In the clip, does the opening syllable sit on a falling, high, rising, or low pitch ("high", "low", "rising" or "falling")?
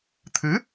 rising